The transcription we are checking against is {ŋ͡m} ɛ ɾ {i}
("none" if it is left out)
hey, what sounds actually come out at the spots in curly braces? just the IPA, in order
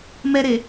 m, e

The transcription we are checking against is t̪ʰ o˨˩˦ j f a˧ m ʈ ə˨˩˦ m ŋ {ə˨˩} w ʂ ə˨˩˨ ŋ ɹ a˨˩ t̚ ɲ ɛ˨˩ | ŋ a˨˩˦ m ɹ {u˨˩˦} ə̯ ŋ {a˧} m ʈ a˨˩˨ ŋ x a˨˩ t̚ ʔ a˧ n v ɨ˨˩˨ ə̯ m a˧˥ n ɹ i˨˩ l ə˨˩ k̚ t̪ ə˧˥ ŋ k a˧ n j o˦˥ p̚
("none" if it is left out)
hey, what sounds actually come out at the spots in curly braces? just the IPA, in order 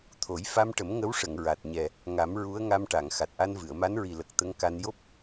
ə˧˥, u˧˥, a˧

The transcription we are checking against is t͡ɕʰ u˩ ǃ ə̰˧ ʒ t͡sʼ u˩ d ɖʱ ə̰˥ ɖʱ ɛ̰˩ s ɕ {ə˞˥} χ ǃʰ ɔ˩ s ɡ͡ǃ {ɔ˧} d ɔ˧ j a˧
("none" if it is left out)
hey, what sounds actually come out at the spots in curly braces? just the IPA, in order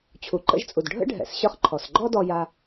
ə˞˧, ɔ˥

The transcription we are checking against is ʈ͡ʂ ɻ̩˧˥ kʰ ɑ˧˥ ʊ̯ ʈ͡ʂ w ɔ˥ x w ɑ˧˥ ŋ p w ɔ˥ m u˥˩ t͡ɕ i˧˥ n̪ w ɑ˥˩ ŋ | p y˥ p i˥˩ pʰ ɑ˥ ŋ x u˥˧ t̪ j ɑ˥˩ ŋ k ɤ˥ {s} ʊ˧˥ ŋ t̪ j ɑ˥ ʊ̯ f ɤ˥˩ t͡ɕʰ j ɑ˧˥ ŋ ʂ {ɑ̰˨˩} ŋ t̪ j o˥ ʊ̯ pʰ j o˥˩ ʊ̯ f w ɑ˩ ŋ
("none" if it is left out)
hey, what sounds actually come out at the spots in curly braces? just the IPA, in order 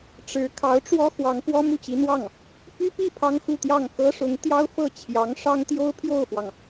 ʂ, ɑ˥

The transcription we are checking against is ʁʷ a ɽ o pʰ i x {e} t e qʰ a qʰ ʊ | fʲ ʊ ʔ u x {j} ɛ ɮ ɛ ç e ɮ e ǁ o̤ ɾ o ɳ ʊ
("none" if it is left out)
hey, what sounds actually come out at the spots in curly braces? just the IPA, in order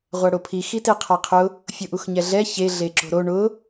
i, ɲ

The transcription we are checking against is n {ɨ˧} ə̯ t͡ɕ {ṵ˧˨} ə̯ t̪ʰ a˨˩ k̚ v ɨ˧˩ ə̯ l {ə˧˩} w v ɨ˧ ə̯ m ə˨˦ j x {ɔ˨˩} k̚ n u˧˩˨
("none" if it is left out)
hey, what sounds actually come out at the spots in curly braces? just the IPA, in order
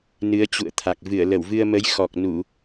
ɨ˨˦, ṵ˧˨, ə˧˩, ɔ˨˩

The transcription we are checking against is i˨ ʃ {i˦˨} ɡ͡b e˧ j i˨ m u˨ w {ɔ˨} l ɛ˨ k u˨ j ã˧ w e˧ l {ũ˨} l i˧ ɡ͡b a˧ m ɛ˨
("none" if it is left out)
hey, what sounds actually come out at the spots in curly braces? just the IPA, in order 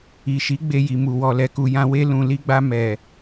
i˨˦, ɔ˨, ũ˨

